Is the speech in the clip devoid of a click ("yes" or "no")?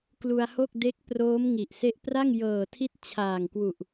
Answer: yes